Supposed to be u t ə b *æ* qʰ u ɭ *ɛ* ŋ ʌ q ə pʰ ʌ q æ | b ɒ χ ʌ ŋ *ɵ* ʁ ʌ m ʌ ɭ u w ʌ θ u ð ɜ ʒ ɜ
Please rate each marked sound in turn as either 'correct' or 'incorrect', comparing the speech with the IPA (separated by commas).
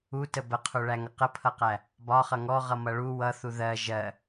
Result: incorrect, incorrect, incorrect